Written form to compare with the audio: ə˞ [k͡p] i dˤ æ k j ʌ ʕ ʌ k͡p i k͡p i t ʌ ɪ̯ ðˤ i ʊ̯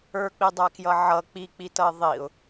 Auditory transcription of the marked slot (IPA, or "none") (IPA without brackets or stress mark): k͡p